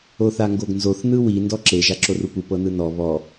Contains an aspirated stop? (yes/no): no